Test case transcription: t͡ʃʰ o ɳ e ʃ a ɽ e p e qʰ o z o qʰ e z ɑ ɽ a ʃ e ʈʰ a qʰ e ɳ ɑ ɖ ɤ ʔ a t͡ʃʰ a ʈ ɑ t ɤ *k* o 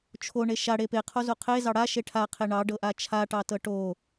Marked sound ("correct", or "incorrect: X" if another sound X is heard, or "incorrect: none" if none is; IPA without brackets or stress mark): incorrect: ʈ